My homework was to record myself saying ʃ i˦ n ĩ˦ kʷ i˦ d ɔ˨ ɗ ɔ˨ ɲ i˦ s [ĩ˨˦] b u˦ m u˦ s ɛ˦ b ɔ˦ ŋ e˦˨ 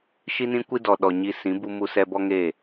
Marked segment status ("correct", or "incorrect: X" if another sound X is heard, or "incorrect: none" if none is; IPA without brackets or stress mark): correct